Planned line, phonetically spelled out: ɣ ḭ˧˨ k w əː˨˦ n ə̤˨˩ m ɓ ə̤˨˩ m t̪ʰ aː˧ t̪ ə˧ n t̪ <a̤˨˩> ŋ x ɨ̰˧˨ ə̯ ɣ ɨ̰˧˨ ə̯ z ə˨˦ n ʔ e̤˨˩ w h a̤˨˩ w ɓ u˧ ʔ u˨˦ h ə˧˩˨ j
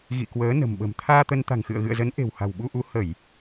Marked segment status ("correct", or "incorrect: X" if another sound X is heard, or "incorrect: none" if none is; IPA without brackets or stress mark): correct